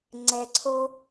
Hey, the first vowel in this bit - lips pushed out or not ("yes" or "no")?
no